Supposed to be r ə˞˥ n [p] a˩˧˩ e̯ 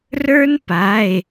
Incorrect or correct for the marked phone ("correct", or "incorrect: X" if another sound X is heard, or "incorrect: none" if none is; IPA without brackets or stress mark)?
correct